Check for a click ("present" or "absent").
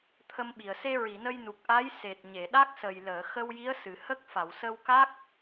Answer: absent